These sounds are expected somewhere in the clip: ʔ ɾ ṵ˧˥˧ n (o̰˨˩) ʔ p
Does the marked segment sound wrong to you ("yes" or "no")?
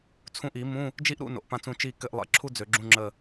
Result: no